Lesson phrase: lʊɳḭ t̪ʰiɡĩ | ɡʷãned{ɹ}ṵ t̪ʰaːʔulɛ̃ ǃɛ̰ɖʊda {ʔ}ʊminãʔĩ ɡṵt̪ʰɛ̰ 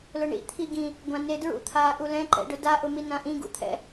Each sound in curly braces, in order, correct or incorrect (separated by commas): correct, correct